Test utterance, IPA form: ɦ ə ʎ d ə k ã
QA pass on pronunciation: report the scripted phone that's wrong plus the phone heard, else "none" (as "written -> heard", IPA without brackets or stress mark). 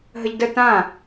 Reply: k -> t